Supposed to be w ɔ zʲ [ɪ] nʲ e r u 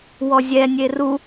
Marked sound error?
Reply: yes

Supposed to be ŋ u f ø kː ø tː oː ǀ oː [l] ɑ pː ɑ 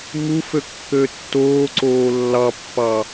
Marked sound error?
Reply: yes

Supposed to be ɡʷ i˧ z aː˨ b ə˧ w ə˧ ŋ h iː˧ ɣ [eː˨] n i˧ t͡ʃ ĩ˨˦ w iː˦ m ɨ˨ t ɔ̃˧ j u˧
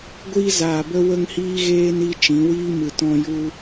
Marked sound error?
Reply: yes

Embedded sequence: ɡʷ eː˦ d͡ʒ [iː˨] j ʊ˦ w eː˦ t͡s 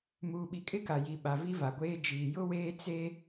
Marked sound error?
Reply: no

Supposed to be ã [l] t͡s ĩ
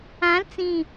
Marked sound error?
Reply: no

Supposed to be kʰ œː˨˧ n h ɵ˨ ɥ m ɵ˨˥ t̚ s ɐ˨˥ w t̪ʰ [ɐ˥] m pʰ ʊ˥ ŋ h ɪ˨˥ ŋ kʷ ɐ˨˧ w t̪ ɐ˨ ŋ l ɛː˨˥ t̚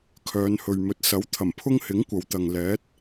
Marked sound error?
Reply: yes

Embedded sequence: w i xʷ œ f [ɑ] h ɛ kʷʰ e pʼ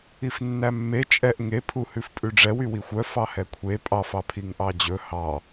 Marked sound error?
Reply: no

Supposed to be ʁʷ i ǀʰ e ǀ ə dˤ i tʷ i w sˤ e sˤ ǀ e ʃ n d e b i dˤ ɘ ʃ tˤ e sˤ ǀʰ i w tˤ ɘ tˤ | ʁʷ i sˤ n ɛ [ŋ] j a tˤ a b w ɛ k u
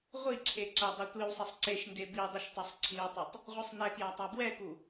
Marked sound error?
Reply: yes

